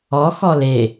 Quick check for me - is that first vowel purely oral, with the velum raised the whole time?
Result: yes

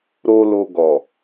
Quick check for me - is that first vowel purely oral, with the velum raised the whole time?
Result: yes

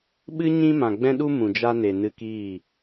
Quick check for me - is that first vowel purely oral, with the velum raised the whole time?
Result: yes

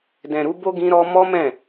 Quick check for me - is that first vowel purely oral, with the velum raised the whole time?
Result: no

